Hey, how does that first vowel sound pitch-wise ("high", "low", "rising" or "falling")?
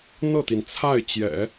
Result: falling